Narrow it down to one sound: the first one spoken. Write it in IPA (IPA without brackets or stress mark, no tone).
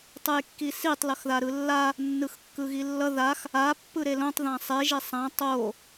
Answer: tˤ